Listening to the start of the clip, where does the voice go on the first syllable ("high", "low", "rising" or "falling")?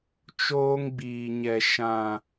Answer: high